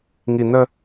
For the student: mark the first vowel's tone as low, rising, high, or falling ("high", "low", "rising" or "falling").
low